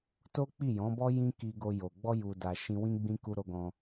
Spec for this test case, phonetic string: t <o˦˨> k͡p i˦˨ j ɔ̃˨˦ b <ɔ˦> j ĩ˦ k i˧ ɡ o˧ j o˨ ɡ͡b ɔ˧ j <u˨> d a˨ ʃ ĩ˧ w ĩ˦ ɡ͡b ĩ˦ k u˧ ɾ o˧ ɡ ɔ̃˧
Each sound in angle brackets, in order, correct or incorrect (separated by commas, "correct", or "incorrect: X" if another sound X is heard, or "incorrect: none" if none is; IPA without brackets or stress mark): incorrect: o˦, correct, correct